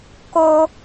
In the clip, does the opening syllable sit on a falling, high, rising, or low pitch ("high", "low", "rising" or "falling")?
high